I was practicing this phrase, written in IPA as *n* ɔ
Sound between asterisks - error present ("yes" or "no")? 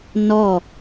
no